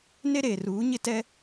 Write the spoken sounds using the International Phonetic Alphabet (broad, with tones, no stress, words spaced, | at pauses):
ne˦ɾeː˨ruː˨˦ ɲɪ˦tɛ˦